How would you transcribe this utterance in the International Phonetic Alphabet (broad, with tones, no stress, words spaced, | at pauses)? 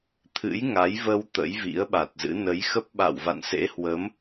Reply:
t̪ʰɨ̰˧˥j ŋa˨˦jvə˧w t̪ə̰˧˥jvḭ˧˥ə̯ɓa˨˩t̚zɨ̰˧˥ nə˨˦jxə˦˥p̚ɓa̰˧˨w va̰˧˨nsḛ˧˥hwə˨˦m